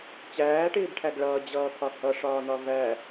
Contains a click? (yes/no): no